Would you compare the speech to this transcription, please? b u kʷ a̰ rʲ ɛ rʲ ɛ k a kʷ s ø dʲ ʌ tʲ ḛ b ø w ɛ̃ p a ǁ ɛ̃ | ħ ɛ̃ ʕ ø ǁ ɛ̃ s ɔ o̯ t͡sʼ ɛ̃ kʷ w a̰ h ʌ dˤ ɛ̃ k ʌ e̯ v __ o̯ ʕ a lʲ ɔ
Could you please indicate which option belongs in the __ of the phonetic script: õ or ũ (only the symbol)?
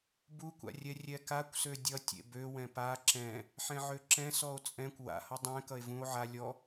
ũ